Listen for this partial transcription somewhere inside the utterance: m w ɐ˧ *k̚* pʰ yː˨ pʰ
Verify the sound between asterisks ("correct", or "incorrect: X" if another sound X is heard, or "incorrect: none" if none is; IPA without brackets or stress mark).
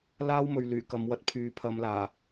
incorrect: t̚